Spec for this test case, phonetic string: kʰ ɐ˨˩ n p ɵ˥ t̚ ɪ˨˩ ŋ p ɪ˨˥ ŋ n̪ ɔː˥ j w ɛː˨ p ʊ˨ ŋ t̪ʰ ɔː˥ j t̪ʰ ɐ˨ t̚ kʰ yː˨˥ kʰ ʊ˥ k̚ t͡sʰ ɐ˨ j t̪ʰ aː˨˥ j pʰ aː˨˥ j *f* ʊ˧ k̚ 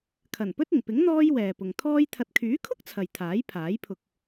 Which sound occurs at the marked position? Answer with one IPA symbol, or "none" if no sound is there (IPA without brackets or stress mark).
pʰ